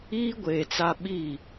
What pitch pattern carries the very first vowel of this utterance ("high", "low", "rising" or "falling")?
high